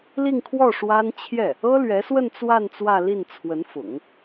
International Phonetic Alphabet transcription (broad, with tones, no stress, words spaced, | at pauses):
li˥˧ŋkʰwɔ˥˩ ʂwa˥n t͡ɕʰjɛ˥˩ | ɤ˥lɥɛ˧˥swə˥˧n t͡swa˥˧n t͡swä˥˧li˥˩n t͡sʰwə˧˥n fʊ̰˨˩˦ŋ